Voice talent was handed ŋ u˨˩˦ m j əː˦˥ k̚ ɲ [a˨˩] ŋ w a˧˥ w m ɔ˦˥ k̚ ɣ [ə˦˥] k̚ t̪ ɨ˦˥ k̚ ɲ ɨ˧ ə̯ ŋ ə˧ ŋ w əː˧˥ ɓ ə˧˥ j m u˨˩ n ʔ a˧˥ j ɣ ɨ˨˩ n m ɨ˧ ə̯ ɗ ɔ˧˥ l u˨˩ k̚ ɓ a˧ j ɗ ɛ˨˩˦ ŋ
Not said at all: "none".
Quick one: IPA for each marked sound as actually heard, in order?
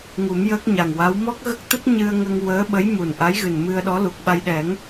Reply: a˨˩, ə˦˥

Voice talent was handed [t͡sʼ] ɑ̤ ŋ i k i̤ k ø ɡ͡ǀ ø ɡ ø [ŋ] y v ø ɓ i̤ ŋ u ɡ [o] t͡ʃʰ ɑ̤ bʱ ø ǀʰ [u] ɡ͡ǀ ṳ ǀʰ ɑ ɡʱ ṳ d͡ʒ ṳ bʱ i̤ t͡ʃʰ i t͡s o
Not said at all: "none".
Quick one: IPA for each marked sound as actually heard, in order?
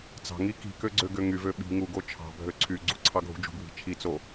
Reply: t͡s, ŋ, o, y

